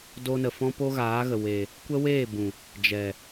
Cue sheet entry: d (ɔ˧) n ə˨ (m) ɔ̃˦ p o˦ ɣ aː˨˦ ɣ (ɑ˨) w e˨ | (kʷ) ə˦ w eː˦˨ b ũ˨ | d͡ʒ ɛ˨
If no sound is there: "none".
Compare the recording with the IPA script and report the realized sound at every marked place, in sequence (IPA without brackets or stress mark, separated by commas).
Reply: o˧, f, ə˨, kʷ